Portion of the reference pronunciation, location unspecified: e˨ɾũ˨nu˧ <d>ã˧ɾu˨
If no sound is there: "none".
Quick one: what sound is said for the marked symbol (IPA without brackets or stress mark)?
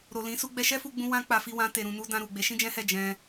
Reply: d